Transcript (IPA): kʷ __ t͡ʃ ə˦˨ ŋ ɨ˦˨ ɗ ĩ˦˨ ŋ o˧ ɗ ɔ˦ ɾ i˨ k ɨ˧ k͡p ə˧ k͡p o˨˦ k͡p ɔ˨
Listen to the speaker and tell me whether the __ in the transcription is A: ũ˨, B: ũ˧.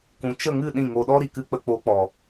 B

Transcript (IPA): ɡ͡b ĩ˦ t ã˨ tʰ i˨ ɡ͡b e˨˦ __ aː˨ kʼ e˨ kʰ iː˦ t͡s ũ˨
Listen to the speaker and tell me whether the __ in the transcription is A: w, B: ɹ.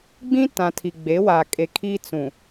A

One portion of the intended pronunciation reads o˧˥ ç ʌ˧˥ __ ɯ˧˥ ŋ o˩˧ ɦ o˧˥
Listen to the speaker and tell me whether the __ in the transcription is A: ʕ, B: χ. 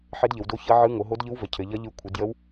A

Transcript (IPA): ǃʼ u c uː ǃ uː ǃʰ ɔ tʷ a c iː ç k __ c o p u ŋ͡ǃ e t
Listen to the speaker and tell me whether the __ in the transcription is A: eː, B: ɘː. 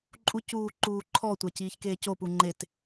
A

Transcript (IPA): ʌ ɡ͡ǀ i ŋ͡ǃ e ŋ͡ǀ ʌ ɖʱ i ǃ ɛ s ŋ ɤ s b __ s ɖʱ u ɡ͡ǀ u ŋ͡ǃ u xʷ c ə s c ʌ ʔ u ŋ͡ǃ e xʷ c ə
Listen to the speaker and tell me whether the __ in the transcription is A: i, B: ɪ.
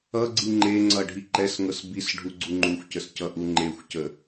A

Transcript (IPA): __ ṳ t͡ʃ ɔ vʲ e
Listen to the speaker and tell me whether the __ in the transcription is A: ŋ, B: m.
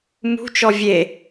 B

